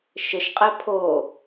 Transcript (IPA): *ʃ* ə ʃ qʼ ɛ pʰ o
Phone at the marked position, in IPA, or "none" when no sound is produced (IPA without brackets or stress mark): ʃ